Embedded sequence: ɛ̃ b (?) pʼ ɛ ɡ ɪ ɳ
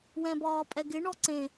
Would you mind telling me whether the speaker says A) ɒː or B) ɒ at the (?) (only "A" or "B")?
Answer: A